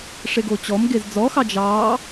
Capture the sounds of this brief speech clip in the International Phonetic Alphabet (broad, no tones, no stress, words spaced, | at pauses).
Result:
ʂeɡot͡ɕɔmɡez d͡zɔxɑ d͡ʒɑː